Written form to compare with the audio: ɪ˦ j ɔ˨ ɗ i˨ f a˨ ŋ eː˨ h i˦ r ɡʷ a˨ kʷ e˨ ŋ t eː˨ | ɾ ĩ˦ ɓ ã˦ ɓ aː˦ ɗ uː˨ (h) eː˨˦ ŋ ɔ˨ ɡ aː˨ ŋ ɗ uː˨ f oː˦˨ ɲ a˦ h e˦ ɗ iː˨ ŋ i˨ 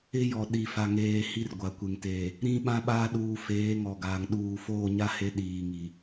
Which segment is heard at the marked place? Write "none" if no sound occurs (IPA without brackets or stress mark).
f